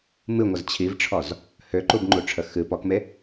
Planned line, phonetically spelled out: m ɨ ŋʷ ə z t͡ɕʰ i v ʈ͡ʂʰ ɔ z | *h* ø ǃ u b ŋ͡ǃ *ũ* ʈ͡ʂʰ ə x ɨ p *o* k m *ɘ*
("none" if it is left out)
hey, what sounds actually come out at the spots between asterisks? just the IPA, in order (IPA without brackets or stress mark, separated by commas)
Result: h, u, ɔ, e